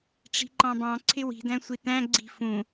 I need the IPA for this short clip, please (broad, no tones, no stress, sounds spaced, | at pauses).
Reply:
ʈ͡ʂ i̤ ǃ ɑ̃ b ɑ̃ ǀʰ ɪ w i̤ d æ̃ sʷ i t æ̃ ɡ͡ǀ i̤ f ũ